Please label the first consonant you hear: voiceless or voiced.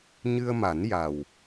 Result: voiced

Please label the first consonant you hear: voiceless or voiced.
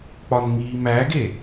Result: voiceless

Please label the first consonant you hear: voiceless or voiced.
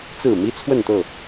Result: voiceless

